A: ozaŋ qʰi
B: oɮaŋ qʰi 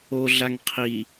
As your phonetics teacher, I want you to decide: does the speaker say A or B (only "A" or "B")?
B